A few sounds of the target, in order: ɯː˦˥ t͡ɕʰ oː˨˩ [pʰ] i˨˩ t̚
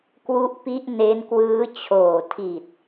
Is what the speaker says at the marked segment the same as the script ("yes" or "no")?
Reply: no